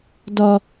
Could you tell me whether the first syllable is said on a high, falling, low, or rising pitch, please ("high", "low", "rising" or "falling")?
high